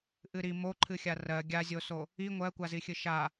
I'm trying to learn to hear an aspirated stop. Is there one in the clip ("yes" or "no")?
yes